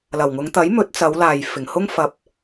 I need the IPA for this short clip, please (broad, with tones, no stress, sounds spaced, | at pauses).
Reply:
l ɐ˨˩ w ŋ ʊ˨˧ ŋ t̪ ɐ˨˥ j m ɵ˨˥ t̚ t͡s ɐ˨˧ w l aː˨ j f ɪ˨˩ ŋ h ʊ˥ ŋ f ɐ˧ p̚